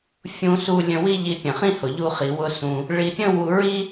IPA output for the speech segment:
fʲ ũ˦ s u˦ lʲ ə̃˧ w i˦ ʎ i˧ pʲ ə̃˨ χ ĩ˦ h ʊ˨ ʎ u˧ χ i˨ w ʊ˧ s ũ˧ | ɭ i˧ pʲ ə̃˦ w u˧ ɹ i˦

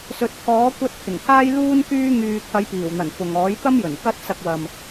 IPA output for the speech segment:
s ɵ˨ t̚ kʰ ɔː˨˥ kʷ ɐ˧ t̚ t̪ʰ ɪ˨˩ ŋ t̪ʰ aː˥ j l uː˥ n k yː˥ ŋ yː˧ t̪ʰ ɐ˨˧ j p iː˨˩ w n̪ ɐ˨˩ n f ʊ˨ ŋ ɔː˨˥ j t̪ ɐ˥ m j ɵ˨˩ n k ɐ˥ t̚ s ɐ˧ k̚ w ɐ˨ m

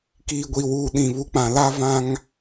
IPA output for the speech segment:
k iː˨ ɡʷ i˨ w uː˨ ɗ ĩ˨ β u˨˦ k͡p ã˨ l a˦ v ã˦ ŋ

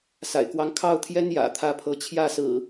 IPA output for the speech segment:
s a̰˨˩ ɪ̯ k w ɑ˦ ŋ kʰ ɑ˥˨ ʊ̯ t̪ʰ j ɛ˦ n j ä̰˨˩ t̪ʰ ä˥˨ pʰ ɤ˨˦ t͡ɕʰ j ä˥˨ s ɹ̩˨˩

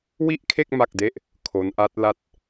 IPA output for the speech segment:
w i˥˩ ʔ kʰ e˥˩ k̚ m a˥˩ k̚ d e˥˩ ʔ | kʰ o˦˥ n ʔ a˦˥ t̚ l a˥˩ t̚

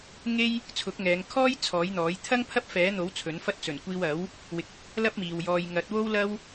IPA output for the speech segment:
ŋ e˥ j | t͡sʰ ʊ˨˥ k̚ ŋ ɛː˨˧ ŋ kʰ ɔː˥ j t͡sʰ ɔː˨˥ j n̪ ɔː˨˥ j t̪ʰ ɐ˥ ŋ pʰ ɐ˥ p̚ f ɛː˨˥ n̪ o˨˥ w t͡sʰ ɵ˨˥ n f ɐ˥ t̚ t͡s ɵ˨˩ n kʷ iː˧ w ɐ˨˥ w | w ɪ˨˥ k̚ ɪ˨ k̚ | l ɐ˥ p̚ m iː˨ w j ɔː˧ j ŋ ɐ˨˥ t̚ w o˥ w l ɐ˥ w

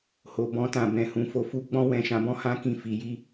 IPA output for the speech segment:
h o˨ b ɔ̃˧ t ã˨ b ɛ̃˨ h ũ˨ f o˨ f u˧ ɡ͡b ɔ̃˧ w ɛ̃˨ ʃ ã˨ b ɔ̃˨˦ h ã˧ k ĩ˨ f i˨ j i˧

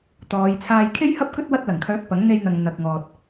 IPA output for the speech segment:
t̪ ɔː˨˧ j t͡sʰ aː˧ j kʰ e˥ j h ɐ˥ p̚ k ɵ˥ t̚ w ɐ˧ t̚ l ɐ˨˩ ŋ kʰ œː˨˥ k̚ p ɐ˨˥ ŋ n̪ e˧ j n̪ ɐ˨ ŋ n̪ ɐ˧ k̚ ŋ ɔː˧ t̚

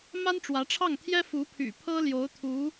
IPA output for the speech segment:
m a˥ n ʈ͡ʂ w ä˧˥ ʈ͡ʂʰ ɑ˥˩ ŋ t̪ʰ j ɛ˥ f u˧˥ pʰ y̰˨˩ pʰ ɤ˥ l j o˧˥ ʊ̯ t̪ʰ u˧˥

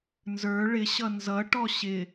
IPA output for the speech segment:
n z ə˞ ɭ ɪ ɕ ʌ n z ʌ ʈ ɔ ɕ ɪ

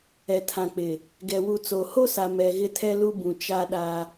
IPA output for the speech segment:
ɛ˨ tʰ ã˨ k͡p ɪ˨ | ɡ ɛ˨ w u˨ t͡s o˨ h o˦ s a˨ m ɛ˨ ɣ ɪ˦ tʰ ɛ˦ l u˦ b ũ˨ t͡ʃ a˦ ɗ a˦

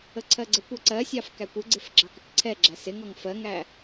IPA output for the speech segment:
ə ǀʰ ɜ ɡ͡ǀ ə kʷ ɛ ǀ ɜ sʲ ɑ f k æ kʷ ɪ ɡ͡ǀ ɪ f ɡ͡ǁ ɑ k ɪ k ǀʰ ɛ ɡ͡ǁ æ s ɪ ŋ ɔ ŋ f ɜ ŋ æ

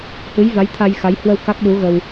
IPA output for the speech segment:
h ɨ˨˦ j v a˨˦ j t̪ʰ a˧ j x a˨˦ j h w ə˧ w k a˦˥ k̚ ɗ u˨˦ ɣ ə˧ w

